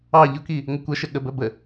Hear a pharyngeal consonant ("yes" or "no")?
no